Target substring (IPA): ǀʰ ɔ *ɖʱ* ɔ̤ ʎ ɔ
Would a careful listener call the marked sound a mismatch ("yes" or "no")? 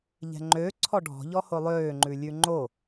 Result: no